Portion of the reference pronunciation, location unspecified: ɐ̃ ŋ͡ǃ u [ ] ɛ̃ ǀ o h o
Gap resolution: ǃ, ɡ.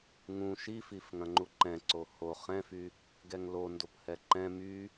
ǃ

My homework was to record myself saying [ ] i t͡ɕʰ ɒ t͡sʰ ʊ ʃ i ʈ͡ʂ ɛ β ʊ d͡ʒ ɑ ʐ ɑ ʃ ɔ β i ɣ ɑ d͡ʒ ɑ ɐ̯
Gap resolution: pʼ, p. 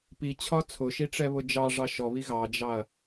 p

